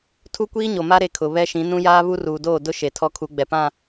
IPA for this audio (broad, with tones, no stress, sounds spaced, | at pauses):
tʰ u˦ kʷ iː˦ ɲ o˨ m a˦ ɾ e˦ kʰ ʊ˨ β ɛ˦ ʃ ĩ˨˦ n ũ˦ j aː˦ β u˦ r uː˨ d oː˦˨ d ʊ˦ ʃ e˨ tʰ ɔ˦ kʰ u˨˦ ɡ͡b ɛ˨ p ã˦˨